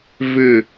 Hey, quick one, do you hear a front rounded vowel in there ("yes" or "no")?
yes